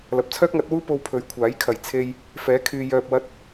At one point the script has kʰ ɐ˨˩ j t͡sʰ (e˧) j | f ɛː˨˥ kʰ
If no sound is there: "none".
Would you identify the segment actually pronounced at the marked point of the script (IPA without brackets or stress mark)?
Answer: e˧